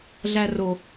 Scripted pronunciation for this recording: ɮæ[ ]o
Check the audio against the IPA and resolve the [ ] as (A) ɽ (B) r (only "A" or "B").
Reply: B